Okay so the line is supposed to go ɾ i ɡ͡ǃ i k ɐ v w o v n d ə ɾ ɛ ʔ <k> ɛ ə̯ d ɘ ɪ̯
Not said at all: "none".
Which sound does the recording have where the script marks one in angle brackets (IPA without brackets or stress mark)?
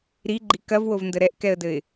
k